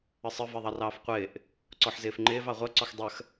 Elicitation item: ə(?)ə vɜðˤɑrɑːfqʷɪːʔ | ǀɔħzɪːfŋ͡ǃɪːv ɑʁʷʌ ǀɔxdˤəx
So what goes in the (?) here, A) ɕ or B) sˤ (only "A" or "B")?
B